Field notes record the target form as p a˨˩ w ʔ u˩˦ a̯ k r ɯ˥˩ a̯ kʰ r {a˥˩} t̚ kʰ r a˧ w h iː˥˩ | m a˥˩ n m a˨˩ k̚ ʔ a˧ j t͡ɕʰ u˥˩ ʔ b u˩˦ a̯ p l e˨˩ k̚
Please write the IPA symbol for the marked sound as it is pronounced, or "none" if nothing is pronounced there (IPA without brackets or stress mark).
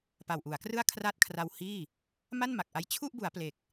a˥˩